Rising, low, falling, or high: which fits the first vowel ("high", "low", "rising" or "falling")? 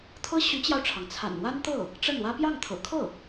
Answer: high